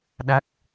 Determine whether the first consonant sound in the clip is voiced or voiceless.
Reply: voiced